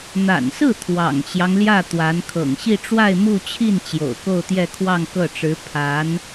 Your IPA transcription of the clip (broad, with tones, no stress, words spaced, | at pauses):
n̪a̰˨˩nsɹ̩˥˩ t̪ʰwɑ̰˨˩ŋt͡ɕjɑ˦ŋljä˥˩ t̪wa˧˥n kʰɤ̰˨˩ŋ ɕi˥˧ʈ͡ʂwa˥˧ɪ̯mu˥˧t͡ɕʰi˥˩n t͡ɕjo̰˨˩ʊ̯ko˥˧ʊ̯t̪jɛ˥˧kʰwɑ˥˧ŋ kɤ˥˩ʈ͡ʂɻ̩˧˥ pʰa˧˥n